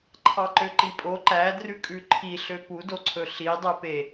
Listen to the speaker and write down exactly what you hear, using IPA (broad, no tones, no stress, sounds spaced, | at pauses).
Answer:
ǃʰ ɑ ǃ ø ǃ i pʼ o ǃ æ d r ʉ kʼ ʉ ǃʰ i ɬ ø p u d o ǀʰ ɵ ɬ i dˤ ø p e